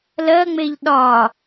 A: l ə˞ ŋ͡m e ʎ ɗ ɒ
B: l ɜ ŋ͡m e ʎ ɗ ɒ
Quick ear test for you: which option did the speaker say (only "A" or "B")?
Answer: B